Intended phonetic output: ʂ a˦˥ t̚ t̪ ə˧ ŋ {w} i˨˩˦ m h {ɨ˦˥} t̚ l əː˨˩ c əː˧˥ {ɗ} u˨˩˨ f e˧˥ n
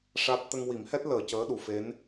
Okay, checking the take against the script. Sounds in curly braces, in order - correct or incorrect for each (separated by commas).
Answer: correct, incorrect, correct